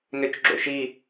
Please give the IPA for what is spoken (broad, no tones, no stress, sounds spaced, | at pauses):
n ø t͡ʃ ɡ͡ǁ o̰ ʃ i